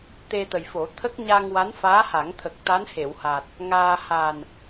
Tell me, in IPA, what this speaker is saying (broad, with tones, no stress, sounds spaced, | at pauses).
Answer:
t̪ e˧ t̪ ə˨˩ j f o˨˩˦ t̪ʰ ə˦˥ k̚ ɲ a˧ ŋ w a˧˥ n f aː˧˥ h a˨˩˦ ŋ t̪ʰ ə˨˩ k̚ t̪ a˧˥ n h e˨˩˨ w h a˨˩ t̚ | ŋ aː˧ h a˨˩ n